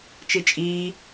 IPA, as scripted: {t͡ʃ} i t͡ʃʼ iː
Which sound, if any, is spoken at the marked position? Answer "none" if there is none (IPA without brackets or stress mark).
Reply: t͡ʃ